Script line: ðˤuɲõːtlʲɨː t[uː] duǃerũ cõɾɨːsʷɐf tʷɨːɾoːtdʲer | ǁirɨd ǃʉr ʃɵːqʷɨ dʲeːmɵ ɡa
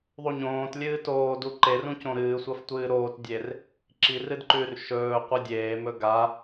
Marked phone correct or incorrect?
incorrect